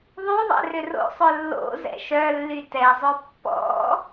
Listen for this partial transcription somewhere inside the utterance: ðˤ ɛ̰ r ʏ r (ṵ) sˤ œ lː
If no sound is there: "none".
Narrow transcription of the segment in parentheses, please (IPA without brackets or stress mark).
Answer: o̰